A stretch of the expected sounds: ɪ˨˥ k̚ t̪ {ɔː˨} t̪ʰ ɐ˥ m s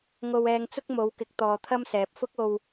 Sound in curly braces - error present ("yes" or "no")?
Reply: no